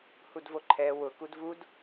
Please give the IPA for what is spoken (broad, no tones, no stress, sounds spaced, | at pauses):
h u d v o ǃʰ ɛ w ʊ k u d v u d